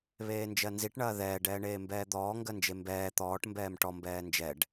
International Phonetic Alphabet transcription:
β eː n d͡ʒ ɜ n z i ʈ ɳ ɐː ð ɛː ɖ ɛː ɳ eː m b ɛː d̪ ɔː ŋ ɡ ɜ n d͡ʒ e m b ɛː t̪ ɔː ʈ m b ɛː m ʈ ɔ m b ɛː n d͡ʒ ɛ ɖ

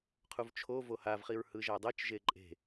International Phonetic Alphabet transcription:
qʰ u v t͡ʃʰ o v o h a v χ i ɹ h ɯ ʒ a dˤ ɤ t͡ʃ ʒ e ǃʼ e̤

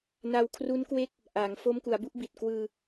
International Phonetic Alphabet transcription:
n a˧ w kʰ r u˦˥ n k w e˦˥ k̚ | ʔ a˩˦ ŋ f o˦˥ m k u˩˦ a̯ b u˥˩ ʔ b i˨˩ t̚ k w ɯː˧

